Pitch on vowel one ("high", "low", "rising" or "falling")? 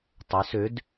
rising